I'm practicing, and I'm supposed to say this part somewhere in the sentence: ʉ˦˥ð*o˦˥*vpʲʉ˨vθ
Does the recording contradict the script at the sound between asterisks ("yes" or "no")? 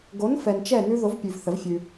yes